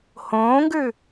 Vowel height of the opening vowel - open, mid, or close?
mid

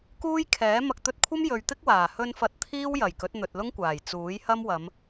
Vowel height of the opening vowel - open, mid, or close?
close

